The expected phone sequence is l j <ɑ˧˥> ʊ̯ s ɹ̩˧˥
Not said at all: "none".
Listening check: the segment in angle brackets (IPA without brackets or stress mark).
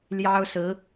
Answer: ɑ˥